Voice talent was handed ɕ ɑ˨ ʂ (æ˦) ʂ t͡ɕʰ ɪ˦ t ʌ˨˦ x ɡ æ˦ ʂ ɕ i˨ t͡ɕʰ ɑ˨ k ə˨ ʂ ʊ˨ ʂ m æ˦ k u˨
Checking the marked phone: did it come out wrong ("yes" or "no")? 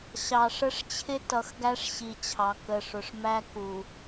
yes